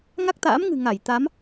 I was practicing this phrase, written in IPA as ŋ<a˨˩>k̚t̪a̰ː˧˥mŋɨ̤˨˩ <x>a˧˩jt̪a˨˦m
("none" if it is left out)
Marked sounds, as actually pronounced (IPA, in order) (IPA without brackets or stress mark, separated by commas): a˦˥, ŋ